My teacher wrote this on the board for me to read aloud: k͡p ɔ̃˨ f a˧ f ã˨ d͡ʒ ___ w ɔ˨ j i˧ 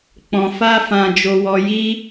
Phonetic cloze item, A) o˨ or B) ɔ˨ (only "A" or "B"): A